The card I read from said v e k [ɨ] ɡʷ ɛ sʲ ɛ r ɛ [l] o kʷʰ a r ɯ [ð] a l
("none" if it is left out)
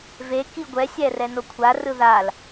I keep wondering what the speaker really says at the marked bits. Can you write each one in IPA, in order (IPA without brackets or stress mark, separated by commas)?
i, n, ð